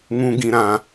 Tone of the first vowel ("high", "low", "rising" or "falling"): high